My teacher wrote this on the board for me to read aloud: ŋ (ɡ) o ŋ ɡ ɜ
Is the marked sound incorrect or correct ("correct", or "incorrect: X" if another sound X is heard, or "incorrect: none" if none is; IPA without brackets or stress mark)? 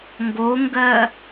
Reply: correct